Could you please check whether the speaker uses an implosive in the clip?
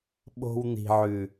yes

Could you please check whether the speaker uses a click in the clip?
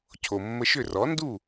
no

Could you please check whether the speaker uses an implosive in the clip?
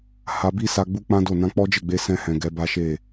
no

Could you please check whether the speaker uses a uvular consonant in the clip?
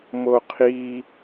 yes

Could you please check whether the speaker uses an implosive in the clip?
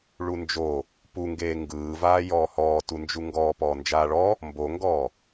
no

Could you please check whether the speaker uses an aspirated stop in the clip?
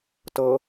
no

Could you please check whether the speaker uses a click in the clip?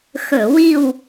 no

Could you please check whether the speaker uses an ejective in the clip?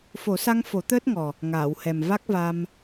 no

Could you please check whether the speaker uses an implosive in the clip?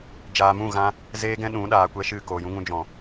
yes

